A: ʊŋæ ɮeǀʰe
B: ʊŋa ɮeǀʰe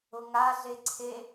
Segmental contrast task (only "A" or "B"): B